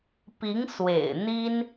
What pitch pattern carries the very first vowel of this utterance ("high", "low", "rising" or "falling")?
rising